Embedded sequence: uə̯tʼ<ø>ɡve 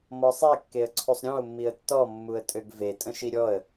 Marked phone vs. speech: correct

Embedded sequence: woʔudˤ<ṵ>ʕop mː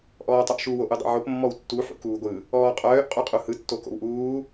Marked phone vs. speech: correct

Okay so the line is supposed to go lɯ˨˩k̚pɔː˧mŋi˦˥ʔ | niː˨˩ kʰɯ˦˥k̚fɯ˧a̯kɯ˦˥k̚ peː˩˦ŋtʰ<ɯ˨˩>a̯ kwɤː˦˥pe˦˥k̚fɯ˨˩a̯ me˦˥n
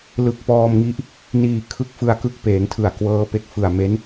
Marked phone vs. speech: correct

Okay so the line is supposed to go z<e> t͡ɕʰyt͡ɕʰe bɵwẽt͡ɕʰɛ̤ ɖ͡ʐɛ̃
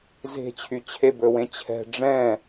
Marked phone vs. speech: incorrect: e̤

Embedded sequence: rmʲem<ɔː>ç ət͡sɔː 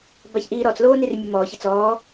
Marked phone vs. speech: correct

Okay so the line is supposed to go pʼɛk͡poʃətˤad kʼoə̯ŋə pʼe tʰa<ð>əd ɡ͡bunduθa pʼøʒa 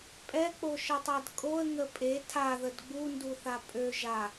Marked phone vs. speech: correct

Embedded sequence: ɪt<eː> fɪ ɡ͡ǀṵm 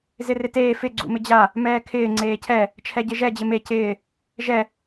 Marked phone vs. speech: correct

